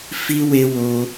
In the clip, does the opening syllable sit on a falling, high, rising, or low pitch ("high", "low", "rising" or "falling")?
high